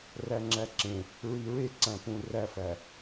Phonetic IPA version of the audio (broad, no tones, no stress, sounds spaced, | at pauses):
r æ ŋ͡ǁ æ ǁ ẽ | ɹ i ɹ e ǀ æ̃ p ũ r æ f æ